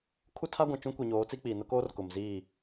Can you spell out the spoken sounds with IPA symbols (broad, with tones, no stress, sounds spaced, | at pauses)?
kʰ u˦ tʰ a˦ ɡʷ ã˨ t͡ʃ ũ˦ kʷ i˨ ɲ oː˨˦ t͡s i˦ k͡p iː˨ n ʊ˦ k oː˦ r k ʊ˨ m z iː˦˨